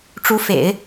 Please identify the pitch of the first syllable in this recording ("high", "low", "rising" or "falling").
rising